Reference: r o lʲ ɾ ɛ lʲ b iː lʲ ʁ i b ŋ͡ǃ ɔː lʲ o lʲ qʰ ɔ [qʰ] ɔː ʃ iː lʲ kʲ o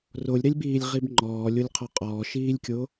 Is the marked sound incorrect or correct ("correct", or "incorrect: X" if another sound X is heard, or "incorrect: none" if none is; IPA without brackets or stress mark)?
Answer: incorrect: qʼ